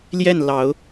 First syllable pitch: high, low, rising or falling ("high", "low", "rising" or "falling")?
falling